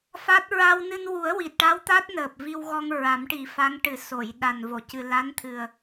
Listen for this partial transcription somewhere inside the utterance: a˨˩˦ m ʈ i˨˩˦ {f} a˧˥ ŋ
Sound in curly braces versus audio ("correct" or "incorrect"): correct